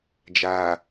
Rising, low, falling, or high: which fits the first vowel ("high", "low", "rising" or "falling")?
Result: low